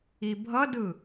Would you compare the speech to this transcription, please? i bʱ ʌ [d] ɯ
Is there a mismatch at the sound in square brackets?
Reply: no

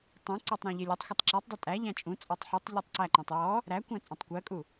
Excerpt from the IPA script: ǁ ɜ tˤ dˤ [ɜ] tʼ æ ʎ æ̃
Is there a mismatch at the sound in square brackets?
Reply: no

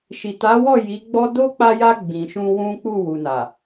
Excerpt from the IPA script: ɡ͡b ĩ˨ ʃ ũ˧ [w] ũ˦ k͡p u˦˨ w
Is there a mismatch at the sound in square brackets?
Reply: no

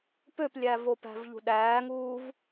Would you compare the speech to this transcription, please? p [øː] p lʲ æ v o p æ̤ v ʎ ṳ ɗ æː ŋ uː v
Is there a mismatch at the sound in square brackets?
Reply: yes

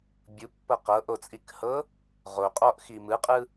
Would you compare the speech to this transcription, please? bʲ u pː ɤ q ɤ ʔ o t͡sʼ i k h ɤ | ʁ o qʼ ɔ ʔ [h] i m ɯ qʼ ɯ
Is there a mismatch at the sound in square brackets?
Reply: yes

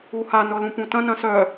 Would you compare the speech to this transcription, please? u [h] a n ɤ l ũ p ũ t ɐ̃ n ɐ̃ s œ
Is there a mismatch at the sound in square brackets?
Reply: no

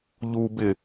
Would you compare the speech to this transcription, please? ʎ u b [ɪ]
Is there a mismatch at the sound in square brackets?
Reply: no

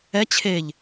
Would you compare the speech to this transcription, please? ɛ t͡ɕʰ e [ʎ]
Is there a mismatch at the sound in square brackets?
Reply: no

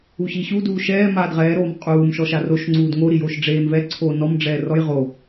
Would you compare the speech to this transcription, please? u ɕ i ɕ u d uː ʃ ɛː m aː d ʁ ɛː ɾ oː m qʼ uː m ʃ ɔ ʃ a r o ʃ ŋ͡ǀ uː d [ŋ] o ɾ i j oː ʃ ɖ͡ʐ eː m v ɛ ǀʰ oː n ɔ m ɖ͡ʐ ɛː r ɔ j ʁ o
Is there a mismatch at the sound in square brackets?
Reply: no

